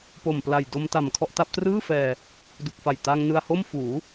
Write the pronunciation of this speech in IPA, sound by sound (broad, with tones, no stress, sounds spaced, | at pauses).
p o˨˩ m p l a˨˩ j d o˧ m t a˨˩ m kʰ ɔ˥˩ ʔ t a˦˥ p̚ t r ɯː˥˩ f ɛː˧ | d u˨˩ k̚ f a˨˩ j t a˧ ŋ n ɯ˧ a̯ h o˥˩ m f uː˩˦